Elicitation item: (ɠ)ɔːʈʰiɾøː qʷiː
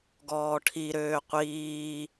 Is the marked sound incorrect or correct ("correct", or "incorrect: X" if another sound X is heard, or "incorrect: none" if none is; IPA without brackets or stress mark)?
incorrect: ɡ